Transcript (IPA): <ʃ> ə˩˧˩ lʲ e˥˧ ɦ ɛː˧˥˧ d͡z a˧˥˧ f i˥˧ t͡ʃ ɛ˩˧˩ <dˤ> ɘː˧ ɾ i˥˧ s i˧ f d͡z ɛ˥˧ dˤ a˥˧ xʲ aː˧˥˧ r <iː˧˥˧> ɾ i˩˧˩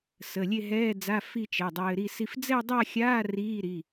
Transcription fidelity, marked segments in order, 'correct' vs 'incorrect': incorrect: s, correct, correct

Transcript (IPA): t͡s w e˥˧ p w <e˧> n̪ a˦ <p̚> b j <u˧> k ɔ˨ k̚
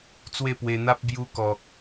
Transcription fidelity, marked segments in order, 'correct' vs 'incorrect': correct, correct, correct

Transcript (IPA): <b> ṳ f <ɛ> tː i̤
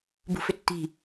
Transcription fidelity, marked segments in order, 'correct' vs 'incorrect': correct, incorrect: ʏ

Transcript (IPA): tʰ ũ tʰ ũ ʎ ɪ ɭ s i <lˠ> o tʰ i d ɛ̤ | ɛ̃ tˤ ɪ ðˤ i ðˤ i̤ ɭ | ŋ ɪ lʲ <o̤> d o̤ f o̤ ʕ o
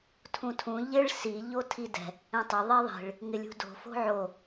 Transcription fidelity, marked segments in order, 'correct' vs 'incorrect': incorrect: ʎ, incorrect: ṳ

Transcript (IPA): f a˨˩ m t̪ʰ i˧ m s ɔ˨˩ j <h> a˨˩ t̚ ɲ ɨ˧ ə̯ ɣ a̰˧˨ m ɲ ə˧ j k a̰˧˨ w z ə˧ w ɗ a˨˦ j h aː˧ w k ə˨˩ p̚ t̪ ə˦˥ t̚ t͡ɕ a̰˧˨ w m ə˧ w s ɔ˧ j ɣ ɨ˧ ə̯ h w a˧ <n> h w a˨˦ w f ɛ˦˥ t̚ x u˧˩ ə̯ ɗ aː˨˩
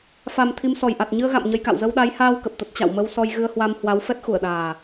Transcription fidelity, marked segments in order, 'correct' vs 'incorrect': incorrect: ʔ, incorrect: m

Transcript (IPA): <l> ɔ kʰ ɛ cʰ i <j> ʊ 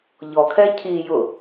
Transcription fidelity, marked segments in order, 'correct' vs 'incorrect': incorrect: ʎ, correct

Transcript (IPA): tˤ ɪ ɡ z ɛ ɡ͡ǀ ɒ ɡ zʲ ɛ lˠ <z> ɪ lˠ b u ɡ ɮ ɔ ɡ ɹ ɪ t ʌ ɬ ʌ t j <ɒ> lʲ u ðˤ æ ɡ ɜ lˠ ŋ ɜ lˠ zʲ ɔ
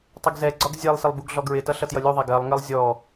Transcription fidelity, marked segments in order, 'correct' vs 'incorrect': incorrect: s, incorrect: ʌ

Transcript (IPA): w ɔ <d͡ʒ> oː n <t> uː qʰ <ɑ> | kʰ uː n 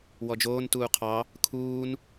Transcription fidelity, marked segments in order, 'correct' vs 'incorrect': correct, correct, correct

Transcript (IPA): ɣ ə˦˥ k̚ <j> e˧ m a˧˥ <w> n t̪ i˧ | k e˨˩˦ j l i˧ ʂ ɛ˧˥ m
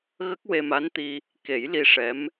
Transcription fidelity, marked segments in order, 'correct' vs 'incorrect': incorrect: w, incorrect: none

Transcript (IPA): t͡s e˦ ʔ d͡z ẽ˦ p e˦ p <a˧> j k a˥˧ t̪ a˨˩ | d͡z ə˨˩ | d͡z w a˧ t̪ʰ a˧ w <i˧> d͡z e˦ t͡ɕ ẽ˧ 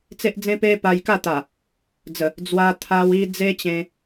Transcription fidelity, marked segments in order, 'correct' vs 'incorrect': correct, correct

